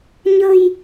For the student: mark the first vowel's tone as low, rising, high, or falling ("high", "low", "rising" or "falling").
low